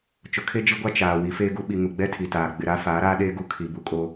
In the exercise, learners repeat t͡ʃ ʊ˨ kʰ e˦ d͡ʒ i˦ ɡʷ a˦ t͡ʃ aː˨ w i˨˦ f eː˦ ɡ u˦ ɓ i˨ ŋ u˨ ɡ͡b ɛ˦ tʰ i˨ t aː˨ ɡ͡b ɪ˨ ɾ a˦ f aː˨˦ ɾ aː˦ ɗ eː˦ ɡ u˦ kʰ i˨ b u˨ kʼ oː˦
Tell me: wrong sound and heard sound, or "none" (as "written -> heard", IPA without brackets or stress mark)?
none